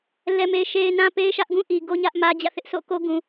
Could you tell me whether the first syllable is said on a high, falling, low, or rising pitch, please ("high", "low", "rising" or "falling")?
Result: low